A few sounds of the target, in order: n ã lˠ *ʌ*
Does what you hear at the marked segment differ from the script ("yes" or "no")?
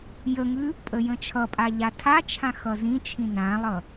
no